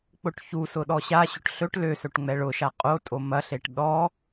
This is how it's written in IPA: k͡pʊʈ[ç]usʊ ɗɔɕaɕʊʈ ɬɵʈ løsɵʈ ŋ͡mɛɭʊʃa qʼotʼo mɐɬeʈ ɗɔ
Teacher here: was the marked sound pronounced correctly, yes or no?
yes